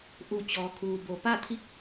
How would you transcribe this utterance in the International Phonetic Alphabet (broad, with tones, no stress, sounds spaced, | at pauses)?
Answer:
ʔ u˧˩ t͡ɕ ɔː˩ kʰ uː˩ b o˩ p a˥˨ t̪ʰ i˧˥ k̚